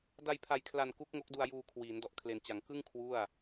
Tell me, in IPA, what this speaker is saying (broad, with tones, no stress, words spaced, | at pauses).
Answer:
da˧j pʰa˧jkʰla˧n ku˦˥k̚ŋo˦˥k̚du˧a̯juː˧ kʰwiː˩˦ndɔ˨˩ʔ kʰle˩˦nt͡ɕa˩˦ŋ kɯ˥˩ŋ kʰwu˥˩a̯